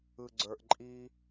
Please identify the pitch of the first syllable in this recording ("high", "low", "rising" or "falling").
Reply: low